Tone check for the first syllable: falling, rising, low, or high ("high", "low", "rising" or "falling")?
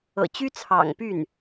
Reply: low